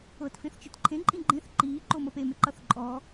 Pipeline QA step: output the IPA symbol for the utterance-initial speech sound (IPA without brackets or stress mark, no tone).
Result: ɤ